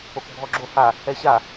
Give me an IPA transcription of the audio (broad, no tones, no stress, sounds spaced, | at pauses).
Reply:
o k bʱ ɔ ɡ͡ǁ o h a | ɛ ɕ a